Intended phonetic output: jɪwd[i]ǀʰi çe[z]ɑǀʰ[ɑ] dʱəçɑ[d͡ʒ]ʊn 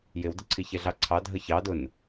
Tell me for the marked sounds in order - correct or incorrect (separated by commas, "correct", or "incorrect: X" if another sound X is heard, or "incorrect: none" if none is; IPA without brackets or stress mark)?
incorrect: ɪ, incorrect: ɮ, correct, incorrect: d